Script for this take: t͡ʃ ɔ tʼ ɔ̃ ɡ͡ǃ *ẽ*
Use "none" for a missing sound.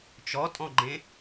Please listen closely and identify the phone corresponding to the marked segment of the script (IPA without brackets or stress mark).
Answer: ẽ